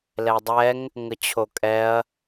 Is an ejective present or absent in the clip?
present